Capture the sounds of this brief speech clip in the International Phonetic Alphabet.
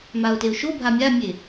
m a ʊ̯ t e ʊ̯ ʃ o bʱ a mʲ a mʲ e

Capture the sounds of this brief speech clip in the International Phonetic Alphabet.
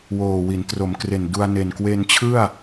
w oː˨˩ w i˩˦ n t r o˩˦ m k r e˨˩ n d u˧ a̯ n e˨˩ n k w e˧ n t͡ɕʰ ɯ˥˩ a̯

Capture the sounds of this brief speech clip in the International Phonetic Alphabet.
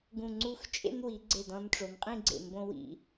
ɡ ũ˧˩ ŋ͡ǀ u˥˧ x t͡ʃʼ ḛ˥ n w i˩˧ ɡ͡ǀ e˧˩ d ɔ̃˧ n ʈ͡ʂ o˩˧ n qʼ ĩ˥˧ ɡ͡ǀ ḛ˧˩ m b õ˥ w ḭ˧

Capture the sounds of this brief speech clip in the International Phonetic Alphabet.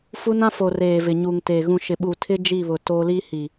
f u˦ n ã˦ f o˨ r eː˨ v ɪ˨ ɲ u˨ ŋ t e˨ ɣ ũ˨ ʃ ɪ˨ ɓ u˨ tʰ ɪ˦ d͡ʒ i˦˨ β ʊ˨ t o˦ l i˦ h i˨

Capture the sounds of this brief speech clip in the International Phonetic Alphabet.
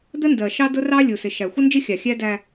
d̪ ə˦ n d ɜ˨ ʃ ɑ˦ d ʊ˦ r ɑ˦ lʲ u˨ s ɪ˨ ʃ æ˨ xʷ ə˦ n d͡ʒ ɪ˦ xʲ ɑ˨ xʲ æ˦ d æ˦

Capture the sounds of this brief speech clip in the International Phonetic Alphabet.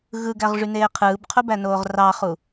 ɣ ɯ ɡ æ ʁ ʐ y n eː qʰ ɯː b qʰ u b æ n oː ʁ r ɑ χ u

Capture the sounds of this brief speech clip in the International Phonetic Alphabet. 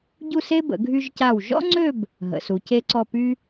ɟ u˥˧ s e˥ b ə̰˩˧ ɡʱ y˧ ʒ c a˧˩ w ʒ ɔ̰˥ ŋ͡ǀ ø˥˧ b | ɦ ə̰˩˧ s u˩˧ c e˥ ǀ ɔ˥˧ p y˥

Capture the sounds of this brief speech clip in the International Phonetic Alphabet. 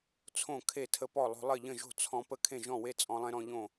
t͡sʰ õ˥˩ kʰ e˥˩ tʰ ə˧ p ɔ˥˩ lˠ o̤˧ lˠ ɘ˥˩ ʎ ə̃˥˩ ʒ o̤˥˩ t͡sʰ ɔ̃˧ p ə˥˩ kʰ ẽ˥˩ ʒ ɔ̃˥˩ w e˥˩ t͡sʼ ɔ̃˧ lˠ ẽ˧ ɾ ɔ̃˧ ʎ õ˥˩

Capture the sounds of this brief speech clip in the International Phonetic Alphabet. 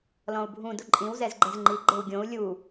l ɔ̃ u̯ bʱ ũ d ʊ ǃʼ ĩ w z ɛ z ɡ͡ǃ ɛ z ŋ͡ǃ i ɡ͡ǃ e w ɡʲ õ u̯ lʲ u

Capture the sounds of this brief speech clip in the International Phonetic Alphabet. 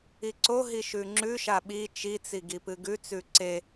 i ǀ o ɦ i ʃ ʉ ŋ͡ǁ ʉ ʃ a ɓ i t͡ʃ i t͡s i ɡ i p ɨ ɡ ʉ t͡s ʉ ǀ e

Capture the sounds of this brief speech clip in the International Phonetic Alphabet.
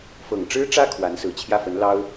f ɤ˨˩ ŋ ʈ͡ʂ ɻ̩˥ ʈ͡ʂ ä˥ kʰ w a˧˥ n s ɹ̩˨˩ t͡ɕʰ j ä˥˩ f ə˧˥ n l ɑ˥ ʊ̯

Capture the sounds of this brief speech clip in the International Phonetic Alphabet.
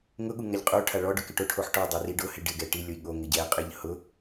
ŋ ʊ ɠ u ŋ a ʎ qʼ u ʈʰ a ɭ ɔ ɖ ʊ k ɪ ʈ o ʈʰ o ħ ʈ ɔ dˤ e r i ɖ ʊ h ɪ ɖ ɪ ɡ ɛ ʈ i lʲ ʊ i̯ ɠ o ŋ ɪ ɟ ɛ qʼ ɪ ʎ h ʊ

